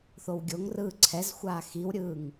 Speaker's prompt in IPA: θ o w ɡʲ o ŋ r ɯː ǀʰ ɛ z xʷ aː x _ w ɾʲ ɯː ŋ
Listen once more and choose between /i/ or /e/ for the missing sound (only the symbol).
i